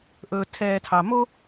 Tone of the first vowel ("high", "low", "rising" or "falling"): low